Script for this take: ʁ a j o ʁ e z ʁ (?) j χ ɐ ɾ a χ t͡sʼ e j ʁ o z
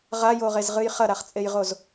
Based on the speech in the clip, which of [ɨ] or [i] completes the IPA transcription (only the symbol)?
ɨ